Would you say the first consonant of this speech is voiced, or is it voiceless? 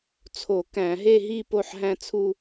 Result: voiceless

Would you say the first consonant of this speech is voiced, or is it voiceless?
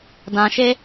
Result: voiced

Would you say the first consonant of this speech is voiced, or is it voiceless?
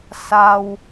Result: voiceless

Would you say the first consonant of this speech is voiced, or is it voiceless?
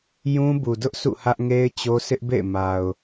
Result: voiced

